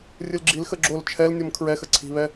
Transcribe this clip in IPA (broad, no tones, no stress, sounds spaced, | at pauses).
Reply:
rʲ ɨ l ɡ͡ǁ i l x ə ɡ͡ǁ o l t͡ʃʰ ɛ l nʲ o m kʰ ɹ ɛ x ə ǀʰ i̤ β ɛ